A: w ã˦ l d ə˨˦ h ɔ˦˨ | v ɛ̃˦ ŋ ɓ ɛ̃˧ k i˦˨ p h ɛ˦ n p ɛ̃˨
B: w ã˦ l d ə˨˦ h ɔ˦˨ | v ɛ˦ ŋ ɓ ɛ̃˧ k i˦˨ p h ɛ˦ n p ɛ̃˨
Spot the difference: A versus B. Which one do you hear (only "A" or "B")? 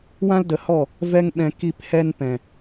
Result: B